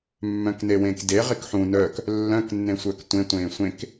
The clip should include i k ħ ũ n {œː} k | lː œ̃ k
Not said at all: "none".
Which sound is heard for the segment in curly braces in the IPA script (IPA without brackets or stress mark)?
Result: œː